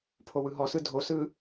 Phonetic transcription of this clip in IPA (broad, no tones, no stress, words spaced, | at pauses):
pʰowɯɦɔsɯ dʱosɯ